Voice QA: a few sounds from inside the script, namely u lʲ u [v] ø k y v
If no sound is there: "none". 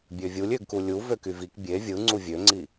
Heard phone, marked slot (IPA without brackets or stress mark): v